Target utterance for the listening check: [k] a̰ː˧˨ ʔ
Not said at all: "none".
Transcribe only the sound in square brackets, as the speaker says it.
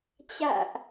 t͡ɕ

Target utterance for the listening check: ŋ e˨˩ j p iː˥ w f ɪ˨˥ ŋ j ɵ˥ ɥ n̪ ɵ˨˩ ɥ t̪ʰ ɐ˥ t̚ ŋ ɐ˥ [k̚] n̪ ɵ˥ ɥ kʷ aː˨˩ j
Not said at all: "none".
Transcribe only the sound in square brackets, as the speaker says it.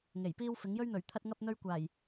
p̚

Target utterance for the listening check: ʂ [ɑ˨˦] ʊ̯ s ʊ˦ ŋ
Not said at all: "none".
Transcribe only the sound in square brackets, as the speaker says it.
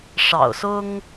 ɑ̰˨˩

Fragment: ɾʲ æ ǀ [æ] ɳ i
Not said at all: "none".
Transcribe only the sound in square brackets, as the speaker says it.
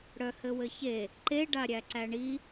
æ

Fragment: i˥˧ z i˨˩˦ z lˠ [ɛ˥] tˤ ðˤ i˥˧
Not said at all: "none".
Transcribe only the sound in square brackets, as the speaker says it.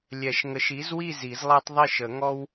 ɛ˥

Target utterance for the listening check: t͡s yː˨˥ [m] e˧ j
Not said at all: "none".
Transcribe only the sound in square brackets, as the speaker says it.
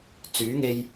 ŋ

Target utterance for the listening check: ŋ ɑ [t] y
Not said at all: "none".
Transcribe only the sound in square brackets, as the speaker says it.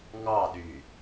ɗ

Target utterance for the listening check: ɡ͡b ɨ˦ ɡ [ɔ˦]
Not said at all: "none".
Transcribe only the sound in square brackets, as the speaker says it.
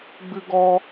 ɔ˦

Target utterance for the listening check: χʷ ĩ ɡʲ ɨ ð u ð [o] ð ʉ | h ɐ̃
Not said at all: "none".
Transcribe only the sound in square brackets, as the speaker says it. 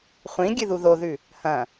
o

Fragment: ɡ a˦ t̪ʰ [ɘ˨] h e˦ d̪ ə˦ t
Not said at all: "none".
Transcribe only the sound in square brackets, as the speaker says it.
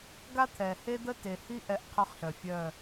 ɛ˨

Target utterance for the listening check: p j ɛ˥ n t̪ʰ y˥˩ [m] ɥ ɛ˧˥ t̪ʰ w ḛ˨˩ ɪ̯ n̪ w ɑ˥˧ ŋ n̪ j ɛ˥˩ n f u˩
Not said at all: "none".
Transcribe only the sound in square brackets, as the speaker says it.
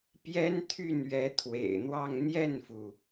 n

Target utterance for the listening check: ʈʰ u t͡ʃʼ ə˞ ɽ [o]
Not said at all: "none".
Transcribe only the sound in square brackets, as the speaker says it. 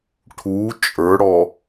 ɔ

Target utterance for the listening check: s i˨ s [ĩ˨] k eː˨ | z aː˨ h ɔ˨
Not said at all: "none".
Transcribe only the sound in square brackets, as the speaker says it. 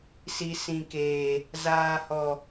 ĩ˨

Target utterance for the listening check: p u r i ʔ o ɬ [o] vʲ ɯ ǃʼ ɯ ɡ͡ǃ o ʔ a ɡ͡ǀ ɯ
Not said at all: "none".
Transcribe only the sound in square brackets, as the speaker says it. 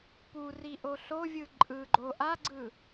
o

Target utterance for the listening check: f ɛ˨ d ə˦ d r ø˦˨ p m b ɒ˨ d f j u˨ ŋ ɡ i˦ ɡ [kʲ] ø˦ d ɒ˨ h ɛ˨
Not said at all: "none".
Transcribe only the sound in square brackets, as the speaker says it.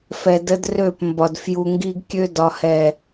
kʲ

